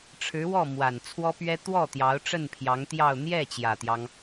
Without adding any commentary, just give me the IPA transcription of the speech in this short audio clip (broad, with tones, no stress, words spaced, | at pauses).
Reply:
ʈ͡ʂʰɻ̩˧˥wɔ˥˩ mwa˨˩nt͡sʰwɔ˥pɥɛ˥ t̪wɔ˥˩ t̪jɑ˧˥ʊ̯ʈ͡ʂə˥˩npʰjɑ˧˥ŋt̪jɑ˥˧ʊ̯ n̪jɛ˥˩ t͡ɕjä˨˩t̪jɑ˦ŋ